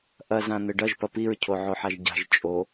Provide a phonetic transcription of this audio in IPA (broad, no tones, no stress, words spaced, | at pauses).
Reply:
ʔɐzã n̪ɘɖɐʒ pɐpiɹcʰo ʕoħaʒɟa̤ʒ t͡ʃʼo